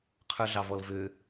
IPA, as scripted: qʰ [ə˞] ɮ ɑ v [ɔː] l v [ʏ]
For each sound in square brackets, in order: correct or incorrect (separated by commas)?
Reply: correct, incorrect, correct